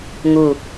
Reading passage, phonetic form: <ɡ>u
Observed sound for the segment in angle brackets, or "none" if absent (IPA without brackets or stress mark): ŋ